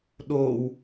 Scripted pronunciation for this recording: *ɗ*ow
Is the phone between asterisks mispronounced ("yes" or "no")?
no